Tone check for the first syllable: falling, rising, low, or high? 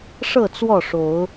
falling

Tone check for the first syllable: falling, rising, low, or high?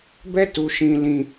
high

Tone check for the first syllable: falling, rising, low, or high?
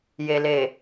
low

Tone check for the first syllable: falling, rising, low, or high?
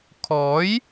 rising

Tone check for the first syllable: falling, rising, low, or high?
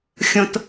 high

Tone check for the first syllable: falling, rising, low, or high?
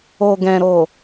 low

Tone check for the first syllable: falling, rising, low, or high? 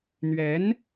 rising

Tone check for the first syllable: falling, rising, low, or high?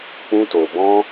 high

